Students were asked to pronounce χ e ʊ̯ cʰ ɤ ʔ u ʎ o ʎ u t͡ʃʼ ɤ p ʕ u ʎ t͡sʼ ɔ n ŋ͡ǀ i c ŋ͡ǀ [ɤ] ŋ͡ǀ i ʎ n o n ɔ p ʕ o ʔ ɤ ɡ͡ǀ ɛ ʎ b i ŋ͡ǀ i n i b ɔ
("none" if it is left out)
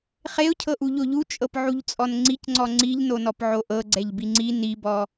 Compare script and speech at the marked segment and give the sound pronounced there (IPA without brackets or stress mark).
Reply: ɔ